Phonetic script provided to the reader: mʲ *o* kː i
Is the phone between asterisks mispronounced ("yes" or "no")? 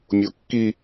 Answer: no